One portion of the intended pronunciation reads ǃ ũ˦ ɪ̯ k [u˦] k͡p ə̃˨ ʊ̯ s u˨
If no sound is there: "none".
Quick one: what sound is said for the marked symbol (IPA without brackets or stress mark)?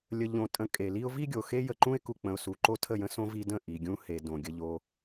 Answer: u˨